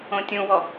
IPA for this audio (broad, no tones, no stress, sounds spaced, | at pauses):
õ tʲ ũ w ɔ